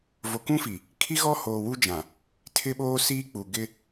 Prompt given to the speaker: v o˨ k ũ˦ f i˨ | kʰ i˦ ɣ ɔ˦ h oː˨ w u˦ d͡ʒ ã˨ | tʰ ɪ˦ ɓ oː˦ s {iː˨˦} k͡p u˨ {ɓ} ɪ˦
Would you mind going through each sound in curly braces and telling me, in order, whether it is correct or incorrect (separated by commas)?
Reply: incorrect, incorrect